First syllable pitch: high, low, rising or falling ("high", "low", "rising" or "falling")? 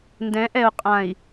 rising